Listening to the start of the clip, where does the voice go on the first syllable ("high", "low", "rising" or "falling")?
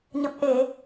low